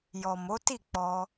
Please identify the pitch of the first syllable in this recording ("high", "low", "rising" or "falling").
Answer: low